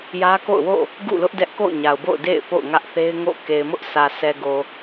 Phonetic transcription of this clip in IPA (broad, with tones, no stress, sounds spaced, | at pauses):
j ä˦ k o̰˦˨ ʊ̯ w o̰˦˨ | ɡ ṵ˦˨ l ʊ˦ ʔ d ɛ˦ ʔ k o̰˦˨ ʊ̯ ɲ a˨ ʊ̯ b o̰˦˨ ʊ̯ d ḛ˦˨ ɪ̯ p o̰˦˨ ʊ̯ ŋ ä˦ ʔ θ e˦ ɪ̯ ŋ o̰˦˨ k e˨ ɪ̯ m ʊ˦ ʔ sʰ ä˨ sʰ ɛ˨ ɡ o˨